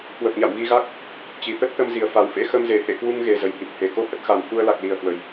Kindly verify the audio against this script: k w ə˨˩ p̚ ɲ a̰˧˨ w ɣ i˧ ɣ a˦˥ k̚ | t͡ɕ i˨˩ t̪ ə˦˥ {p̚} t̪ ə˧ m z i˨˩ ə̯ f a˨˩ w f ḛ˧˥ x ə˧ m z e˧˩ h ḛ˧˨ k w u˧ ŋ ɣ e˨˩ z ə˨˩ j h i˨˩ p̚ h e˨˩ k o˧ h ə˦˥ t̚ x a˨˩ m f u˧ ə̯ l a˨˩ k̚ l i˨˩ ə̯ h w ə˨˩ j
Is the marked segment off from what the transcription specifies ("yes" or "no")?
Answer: yes